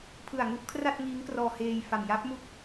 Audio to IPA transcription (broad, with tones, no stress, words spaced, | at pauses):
pʰɯ˨˩a̯ŋu˥˩ʔkʰra˥˩t̚ ŋiː˦˥ŋkrɔː˧heː˧jfa˨˩m ja˦˥p̚mu˥˩k̚